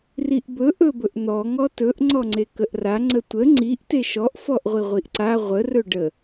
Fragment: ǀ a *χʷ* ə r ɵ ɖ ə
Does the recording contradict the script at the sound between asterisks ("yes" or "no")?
yes